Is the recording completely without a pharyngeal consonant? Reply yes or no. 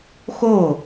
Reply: yes